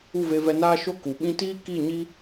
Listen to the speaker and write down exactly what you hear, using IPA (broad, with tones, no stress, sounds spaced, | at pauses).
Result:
u˦˨ v e˧ v ɛ˧ n aː˦ ʃ o˦ k u˨ ɓ ĩ˦ t iː˦ k i˦˨ ɲ i˦